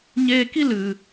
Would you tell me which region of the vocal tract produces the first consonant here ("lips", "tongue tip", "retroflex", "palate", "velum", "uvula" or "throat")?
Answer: palate